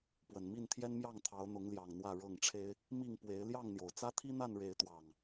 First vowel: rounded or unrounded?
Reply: unrounded